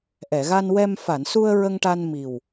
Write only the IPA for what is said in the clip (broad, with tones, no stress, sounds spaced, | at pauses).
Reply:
ʔ ɛ˨˩˨ ɣ a˧ n w ɛ˧ m f a˨˩˨ n s u˧ ə̯ ɹ ə˧ ŋ ʈ a˧ n m i˨˩ w